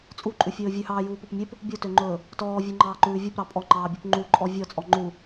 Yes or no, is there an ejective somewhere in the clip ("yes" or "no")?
yes